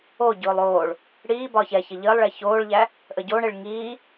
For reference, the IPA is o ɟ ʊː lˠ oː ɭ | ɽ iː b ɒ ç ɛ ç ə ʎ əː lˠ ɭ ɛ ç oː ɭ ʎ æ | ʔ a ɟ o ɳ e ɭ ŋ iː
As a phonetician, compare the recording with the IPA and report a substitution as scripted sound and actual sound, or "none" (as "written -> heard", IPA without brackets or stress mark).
a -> ə